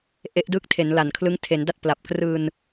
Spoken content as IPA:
ʔe˦˥ʔdɯː˦˥k̚ tʰe˩˦nla˨˩nkʰlɯ˦˥ŋ tʰe˩˦nda˥˩t̚ pla˨˩p̚krɯː˧n

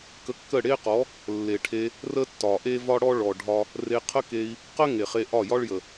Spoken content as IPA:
kə˧kːə˦˨ɽe˦qɔ˨˦ | lːe˨ʈʰe˧ | rə˦tːɒ˨ʔe˦ vɒ˦ɽɔ˦ ɭɔ˨ɖʱɒ˧ | re˧qʰə˦ke˧i̯ | qə˦ ŋe˨χe˧ʔɒ˦˨ jɒ˦ɭjə˨

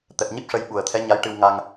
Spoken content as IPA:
t̪ɛ˨˩p̚ɲi˦˥p̚ʂə˧j ɓu˨˩ə̯t̪ʰɛ˧˥ɲa˧˥jʈɨ˧w ŋa˧ŋ

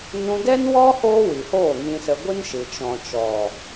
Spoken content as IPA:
nũ˧dɛ˦nwɔ˦ hoː˦wi˨hoː˦˨ ŋĩ˧sə˧ɡʷɨ˦nʃɨ˨ t͡ʃɔ̃˨t͡ʃɔ˨

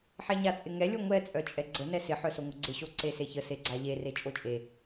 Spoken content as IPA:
ħɛɲat͡sʼɪŋɛ lʲoŋʷɛ t͡sʼœt͡ʃʼɛɡ͡ǀə nɛsɪ ħœsoŋʷɪɡ͡ǀɪ ɕoǀeseçə seɡ͡ǀaʎe ret͡ʃʼot͡ʃʼe

